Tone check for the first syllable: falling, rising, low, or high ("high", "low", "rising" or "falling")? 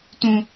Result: high